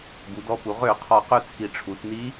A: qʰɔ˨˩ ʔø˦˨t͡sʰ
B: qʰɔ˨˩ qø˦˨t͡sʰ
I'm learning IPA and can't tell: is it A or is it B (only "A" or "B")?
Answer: B